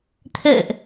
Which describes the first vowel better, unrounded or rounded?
unrounded